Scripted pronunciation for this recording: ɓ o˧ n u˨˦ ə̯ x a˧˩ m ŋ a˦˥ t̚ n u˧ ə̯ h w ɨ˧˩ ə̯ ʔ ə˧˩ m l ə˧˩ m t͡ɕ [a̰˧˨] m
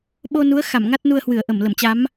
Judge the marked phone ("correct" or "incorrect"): incorrect